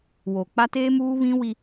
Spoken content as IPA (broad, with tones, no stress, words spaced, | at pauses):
woː˨k͡pa˦ teː˦muː˦βĩ˦ wi˦